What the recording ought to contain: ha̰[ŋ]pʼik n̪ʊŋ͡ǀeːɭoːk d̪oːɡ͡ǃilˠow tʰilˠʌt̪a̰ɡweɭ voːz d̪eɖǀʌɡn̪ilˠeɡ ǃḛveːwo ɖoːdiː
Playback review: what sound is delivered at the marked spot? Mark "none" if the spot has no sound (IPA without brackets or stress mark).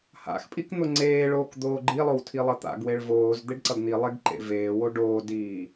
x